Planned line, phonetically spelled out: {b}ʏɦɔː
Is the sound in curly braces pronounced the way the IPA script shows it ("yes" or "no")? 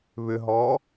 no